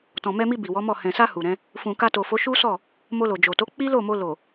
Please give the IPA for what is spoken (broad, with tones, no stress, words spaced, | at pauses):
tɔ̃˨mɛ˧mi˧ bi˨wɔ˨˦mɔ˦˨ hɛ̃˨sa˧ hu˨ɾɛ̃˨˦ | fũ˨ka˧to˨fo˨˦ ʃu˦sɔ˦˨ | mo˧lo˨d͡ʒo˨ to˨˦ k͡pi˦lo˦˨mo˧ lo˨